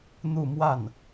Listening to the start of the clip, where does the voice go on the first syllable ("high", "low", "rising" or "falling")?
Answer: falling